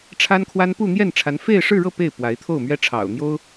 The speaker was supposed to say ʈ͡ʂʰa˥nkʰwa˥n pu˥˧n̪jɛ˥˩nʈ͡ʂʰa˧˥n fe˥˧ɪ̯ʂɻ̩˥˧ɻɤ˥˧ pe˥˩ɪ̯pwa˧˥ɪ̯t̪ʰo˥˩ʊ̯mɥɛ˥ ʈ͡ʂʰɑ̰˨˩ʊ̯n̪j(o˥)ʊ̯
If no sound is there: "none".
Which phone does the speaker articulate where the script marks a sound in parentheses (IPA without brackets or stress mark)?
o˥